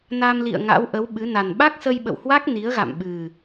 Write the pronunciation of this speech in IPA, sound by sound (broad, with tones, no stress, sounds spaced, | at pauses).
n a˧ m l ḭ˧˨ ə̯ ŋ a̰˧˥ w ʔ ə˨˦ w ɓ ɨ˨˦ n a˨˩ n ɓ a˦˥ k̚ s ə˧ j ɓ ə̰˧˨ w h w a˦˥ k̚ n i˨˦ ə̯ ɣ a̰˧˨ m ɓ ɨ˨˩